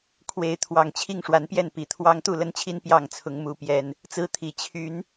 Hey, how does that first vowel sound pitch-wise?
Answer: rising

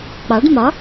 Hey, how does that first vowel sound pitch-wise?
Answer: rising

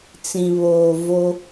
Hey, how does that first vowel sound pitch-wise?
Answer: low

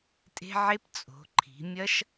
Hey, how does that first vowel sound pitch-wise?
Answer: high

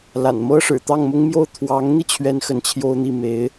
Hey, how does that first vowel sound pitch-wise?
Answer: low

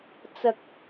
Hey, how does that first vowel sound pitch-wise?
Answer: high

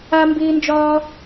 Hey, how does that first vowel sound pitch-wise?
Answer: high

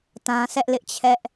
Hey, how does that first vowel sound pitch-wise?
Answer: high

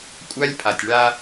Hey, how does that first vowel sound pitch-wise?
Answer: high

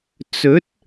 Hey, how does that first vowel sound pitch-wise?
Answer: rising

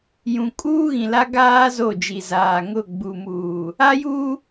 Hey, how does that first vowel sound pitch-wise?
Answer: low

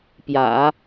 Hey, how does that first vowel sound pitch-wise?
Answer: low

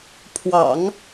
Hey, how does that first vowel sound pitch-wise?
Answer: low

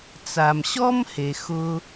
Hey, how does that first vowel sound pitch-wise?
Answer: low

